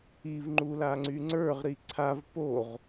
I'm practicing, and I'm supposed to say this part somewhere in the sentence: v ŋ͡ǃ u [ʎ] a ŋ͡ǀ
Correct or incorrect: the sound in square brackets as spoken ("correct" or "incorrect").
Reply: incorrect